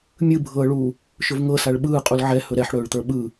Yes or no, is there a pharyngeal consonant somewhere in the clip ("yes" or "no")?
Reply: yes